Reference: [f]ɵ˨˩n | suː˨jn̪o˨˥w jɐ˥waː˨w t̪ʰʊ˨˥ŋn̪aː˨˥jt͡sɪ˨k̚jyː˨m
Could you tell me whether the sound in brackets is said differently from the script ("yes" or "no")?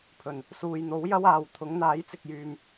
yes